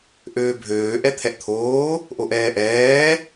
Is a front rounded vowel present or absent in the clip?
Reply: present